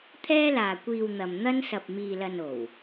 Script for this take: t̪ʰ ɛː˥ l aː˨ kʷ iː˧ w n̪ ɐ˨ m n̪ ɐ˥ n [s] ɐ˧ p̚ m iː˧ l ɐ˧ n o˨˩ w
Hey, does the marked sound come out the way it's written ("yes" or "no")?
yes